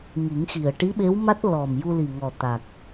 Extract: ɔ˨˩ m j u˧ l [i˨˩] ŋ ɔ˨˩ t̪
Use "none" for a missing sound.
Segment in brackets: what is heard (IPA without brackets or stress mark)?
i˨˩